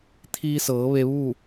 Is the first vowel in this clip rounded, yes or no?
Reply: no